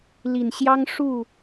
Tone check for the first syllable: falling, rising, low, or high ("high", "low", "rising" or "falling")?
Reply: low